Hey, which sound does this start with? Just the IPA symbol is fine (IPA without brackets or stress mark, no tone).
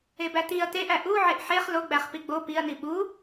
e